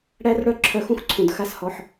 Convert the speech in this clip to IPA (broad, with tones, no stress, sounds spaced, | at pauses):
ɽ æ˦ r ɽ œ˦ ǁʰ œ˧ x ũ˦ x ǀʰ ũ˨ d x a˦ s h ɔ˧ ħ